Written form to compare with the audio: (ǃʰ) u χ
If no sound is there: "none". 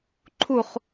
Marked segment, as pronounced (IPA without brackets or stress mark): ǃʰ